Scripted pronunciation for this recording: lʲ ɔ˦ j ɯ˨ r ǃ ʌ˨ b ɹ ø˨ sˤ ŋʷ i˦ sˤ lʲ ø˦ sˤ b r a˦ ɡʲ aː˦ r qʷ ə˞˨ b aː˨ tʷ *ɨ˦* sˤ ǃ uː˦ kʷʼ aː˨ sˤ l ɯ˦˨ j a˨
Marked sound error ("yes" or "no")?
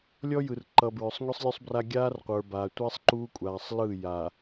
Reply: yes